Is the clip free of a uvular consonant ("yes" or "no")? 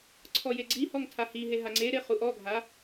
no